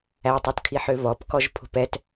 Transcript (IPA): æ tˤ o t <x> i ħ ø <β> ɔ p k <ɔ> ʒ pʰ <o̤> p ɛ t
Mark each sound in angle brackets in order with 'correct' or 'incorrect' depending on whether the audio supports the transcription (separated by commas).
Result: incorrect, correct, correct, correct